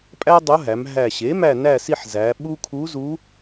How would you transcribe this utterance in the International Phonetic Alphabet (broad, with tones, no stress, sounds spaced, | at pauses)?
pʼ æ˥ dˤ o˧˥ ɦ æ˩˧ m ɦ æ˨˩ ɕ e˩˥ m æ˦˨ n æ˦˨ s i˦˨ ħ z æ˩˧ ɓ u˥ kʰ u˧˥ z u˧˥